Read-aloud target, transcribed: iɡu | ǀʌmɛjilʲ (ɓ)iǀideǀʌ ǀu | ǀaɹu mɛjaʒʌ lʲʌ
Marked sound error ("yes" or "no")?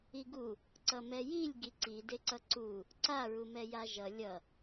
yes